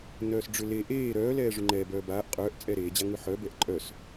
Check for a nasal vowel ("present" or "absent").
absent